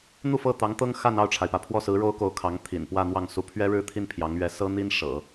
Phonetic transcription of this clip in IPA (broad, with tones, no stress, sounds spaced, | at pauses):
n̪ u˥˧ f ɤ˥˩ t̪ ɑ˧˥ ŋ t̪ ɤ˥ ŋ x a˥˧ n ɑ˥˩ ʊ̯ ʈ͡ʂʰ a˩ ɪ̯ p ä˩ pʰ w ɔ˥˩ s ɹ̩˧˥ ɻ o˥ ʊ̯ k o˧˥ ʊ̯ kʰ ɑ˧˥ ŋ t̪ʰ ḭ˨˩ n p w ä˥˧ n̪ w ɑ˥˩ ŋ s u˧˥ pʰ ɥ ɛ˥ ɻ ɻ̩˥˧ t̪ʰ i˥˩ n pʰ j ɑ˧˥ ŋ ɥ ɛ˧˥ s ɤ˥ n̪ i˥ n ʂ ɤ̰˨˩˦